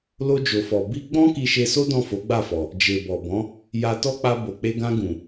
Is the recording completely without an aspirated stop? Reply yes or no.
yes